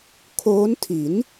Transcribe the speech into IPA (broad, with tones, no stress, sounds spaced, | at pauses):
kʰ oː˦˥ n tʰ i˩˦ n